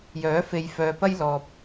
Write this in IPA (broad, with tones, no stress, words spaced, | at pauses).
jœː˨˥ fe˨jfœː˨ pɐ˧j lɔː˨p̚